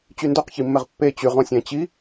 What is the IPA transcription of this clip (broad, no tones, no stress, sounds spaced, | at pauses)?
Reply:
t͡ɕ y n d o q ç i mː ɛ ʁ pː e t͡ɕ y ʁ ɔ̃ sʲ æ̃ t͡ɕ i